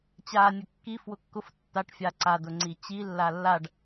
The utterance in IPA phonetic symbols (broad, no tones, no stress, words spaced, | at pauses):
t͡ɕa nʲʊkːi fwʊkːʊf tːaʈ fʲaǀa dʊŋ͡ǀit͡ɕi lːalːaɖ